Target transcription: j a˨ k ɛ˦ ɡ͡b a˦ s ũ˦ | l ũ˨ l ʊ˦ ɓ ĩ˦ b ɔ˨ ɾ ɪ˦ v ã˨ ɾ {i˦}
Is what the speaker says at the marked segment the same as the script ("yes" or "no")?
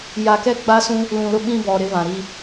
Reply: yes